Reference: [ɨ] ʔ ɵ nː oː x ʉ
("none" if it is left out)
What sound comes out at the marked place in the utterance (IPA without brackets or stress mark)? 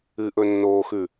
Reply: ɨ